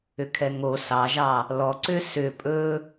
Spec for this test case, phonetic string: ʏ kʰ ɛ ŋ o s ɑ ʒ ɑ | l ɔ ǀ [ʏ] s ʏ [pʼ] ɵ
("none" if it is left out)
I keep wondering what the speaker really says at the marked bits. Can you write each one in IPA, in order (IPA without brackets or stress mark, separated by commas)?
ʏ, pʼ